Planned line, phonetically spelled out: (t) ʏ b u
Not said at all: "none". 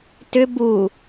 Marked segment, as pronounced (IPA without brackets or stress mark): t